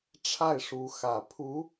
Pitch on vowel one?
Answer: falling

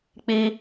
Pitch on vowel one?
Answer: high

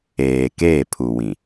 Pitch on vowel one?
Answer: low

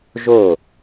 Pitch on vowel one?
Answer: falling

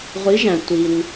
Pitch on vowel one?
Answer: rising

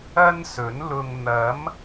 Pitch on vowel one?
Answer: high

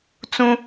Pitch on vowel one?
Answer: high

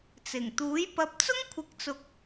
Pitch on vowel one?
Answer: low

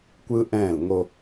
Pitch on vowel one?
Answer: high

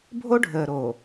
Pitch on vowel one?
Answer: high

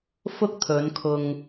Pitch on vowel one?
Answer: high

